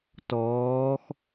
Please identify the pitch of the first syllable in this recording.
rising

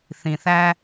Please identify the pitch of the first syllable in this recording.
low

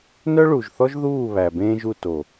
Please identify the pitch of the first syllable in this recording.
high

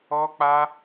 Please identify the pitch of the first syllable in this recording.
high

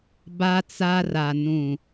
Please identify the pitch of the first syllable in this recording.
high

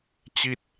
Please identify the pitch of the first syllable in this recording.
falling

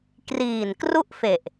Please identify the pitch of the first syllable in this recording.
low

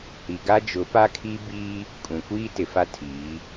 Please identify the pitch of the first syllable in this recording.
low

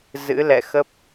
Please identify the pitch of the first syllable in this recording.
rising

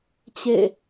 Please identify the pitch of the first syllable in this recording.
falling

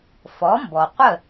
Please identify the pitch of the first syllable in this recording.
rising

